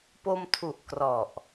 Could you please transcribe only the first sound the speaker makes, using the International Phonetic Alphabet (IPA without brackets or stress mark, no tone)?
p